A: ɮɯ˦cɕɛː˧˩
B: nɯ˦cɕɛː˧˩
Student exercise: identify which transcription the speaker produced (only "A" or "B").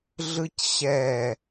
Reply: A